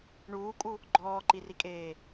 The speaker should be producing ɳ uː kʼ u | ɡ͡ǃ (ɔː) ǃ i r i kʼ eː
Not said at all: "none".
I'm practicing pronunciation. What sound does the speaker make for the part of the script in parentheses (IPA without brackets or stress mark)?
ɔː